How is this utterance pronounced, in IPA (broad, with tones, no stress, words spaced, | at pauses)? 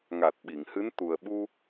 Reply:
ŋa˨˩t̚ ɓi˨˩˨ŋhɨ˧˥n t̪u˨˩ə̯ɓu˧